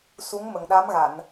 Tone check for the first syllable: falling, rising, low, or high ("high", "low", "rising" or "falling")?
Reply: rising